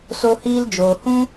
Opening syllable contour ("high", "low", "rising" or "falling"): high